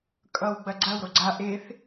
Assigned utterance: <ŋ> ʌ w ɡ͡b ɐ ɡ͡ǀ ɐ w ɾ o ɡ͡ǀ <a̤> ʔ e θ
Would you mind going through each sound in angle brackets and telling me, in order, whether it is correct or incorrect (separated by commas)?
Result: incorrect, incorrect